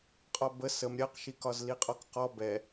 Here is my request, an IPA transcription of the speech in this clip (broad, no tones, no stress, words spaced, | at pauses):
qʼɒbə səm ɾʲɜqʃikɒz liqʼɔkqɔ bɛ